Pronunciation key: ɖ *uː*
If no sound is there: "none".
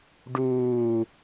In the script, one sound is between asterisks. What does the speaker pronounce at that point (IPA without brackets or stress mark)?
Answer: uː